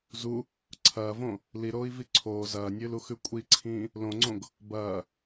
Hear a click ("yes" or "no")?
yes